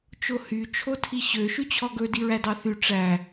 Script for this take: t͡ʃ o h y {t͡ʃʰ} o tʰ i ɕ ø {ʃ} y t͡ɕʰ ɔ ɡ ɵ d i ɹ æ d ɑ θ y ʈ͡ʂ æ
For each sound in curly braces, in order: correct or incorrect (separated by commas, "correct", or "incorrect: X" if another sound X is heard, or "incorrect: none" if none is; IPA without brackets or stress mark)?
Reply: correct, correct